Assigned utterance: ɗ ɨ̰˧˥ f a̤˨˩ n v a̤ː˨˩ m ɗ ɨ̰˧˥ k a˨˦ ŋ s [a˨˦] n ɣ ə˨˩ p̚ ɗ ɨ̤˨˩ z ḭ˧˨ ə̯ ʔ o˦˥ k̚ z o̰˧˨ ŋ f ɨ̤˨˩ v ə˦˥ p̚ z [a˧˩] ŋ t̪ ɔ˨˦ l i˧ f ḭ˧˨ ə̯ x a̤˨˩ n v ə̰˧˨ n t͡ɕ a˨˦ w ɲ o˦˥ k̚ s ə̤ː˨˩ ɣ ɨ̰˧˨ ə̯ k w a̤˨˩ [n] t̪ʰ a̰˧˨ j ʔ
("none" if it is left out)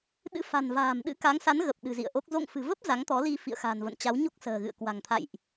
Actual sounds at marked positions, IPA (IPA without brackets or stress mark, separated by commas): a˨˦, a˨˦, ŋ